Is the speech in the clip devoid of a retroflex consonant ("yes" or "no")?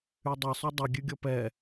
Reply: yes